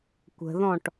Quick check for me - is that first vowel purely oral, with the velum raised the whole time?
yes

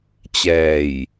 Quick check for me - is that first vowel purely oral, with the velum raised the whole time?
yes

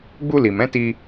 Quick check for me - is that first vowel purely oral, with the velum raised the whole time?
yes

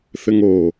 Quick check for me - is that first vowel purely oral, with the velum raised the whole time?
yes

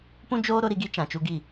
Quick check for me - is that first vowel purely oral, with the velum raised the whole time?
no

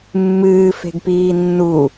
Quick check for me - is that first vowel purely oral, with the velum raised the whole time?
yes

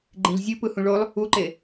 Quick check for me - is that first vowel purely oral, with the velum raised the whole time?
no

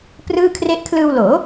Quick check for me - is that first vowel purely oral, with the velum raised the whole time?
yes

